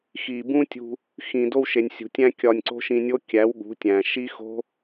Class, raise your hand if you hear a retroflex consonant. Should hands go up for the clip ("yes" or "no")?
no